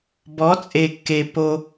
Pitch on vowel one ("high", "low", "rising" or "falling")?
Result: rising